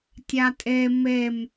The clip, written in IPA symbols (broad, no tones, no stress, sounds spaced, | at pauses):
tʲ a tʼ e m e m